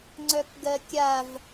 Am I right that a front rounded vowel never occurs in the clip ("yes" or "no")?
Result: no